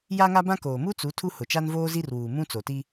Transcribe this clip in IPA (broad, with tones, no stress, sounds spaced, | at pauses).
j a˦ ŋ a˦ b ã˦ k oː˨ m u˦ t͡s u˨˦ tʰ u˦ h ʊ˨ t͡ʃ a˦ n v oː˦ z i˦ r w uː˨ m ũ˦ t͡s o˨ t i˦